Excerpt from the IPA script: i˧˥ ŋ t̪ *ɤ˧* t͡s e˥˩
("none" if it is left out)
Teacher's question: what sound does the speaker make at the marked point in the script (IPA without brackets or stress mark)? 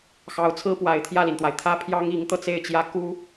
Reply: ɤ˧